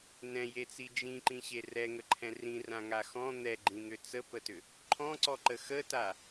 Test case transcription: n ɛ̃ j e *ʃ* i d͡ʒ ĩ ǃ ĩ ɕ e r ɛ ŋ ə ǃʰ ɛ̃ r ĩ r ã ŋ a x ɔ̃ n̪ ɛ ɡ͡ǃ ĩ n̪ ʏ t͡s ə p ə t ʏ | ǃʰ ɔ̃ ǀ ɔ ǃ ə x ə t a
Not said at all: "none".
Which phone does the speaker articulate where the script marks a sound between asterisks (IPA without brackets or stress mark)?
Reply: t͡s